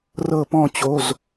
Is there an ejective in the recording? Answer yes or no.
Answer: no